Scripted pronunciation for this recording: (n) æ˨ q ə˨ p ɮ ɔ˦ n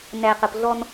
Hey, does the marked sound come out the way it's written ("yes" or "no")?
yes